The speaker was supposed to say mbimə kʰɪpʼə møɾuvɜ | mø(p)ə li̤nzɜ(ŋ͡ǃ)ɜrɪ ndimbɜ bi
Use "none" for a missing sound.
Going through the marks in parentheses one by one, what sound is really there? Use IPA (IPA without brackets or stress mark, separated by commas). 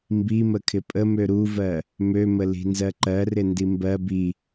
m, ǃ